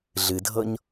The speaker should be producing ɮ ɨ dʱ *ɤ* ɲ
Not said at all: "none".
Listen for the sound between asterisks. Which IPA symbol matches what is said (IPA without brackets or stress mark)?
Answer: ɤ